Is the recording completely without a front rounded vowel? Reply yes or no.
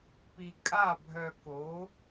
no